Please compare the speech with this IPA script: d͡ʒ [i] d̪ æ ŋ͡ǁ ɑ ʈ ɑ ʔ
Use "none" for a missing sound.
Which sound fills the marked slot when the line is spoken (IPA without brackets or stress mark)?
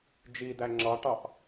i